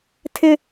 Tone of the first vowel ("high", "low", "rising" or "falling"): high